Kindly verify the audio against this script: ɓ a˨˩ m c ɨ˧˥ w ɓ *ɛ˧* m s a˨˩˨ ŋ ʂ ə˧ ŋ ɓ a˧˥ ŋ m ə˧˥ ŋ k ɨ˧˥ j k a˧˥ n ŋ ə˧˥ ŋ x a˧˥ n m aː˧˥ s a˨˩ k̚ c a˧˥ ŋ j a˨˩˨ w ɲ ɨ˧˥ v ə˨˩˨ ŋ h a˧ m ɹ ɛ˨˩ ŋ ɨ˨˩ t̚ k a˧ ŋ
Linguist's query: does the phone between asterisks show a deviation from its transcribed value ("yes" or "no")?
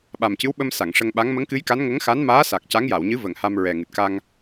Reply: yes